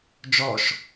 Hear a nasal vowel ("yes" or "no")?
no